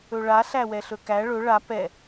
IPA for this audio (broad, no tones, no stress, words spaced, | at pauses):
ɵɭa ɬæwɛɬɵkæ ɭɵ ɭa pɛ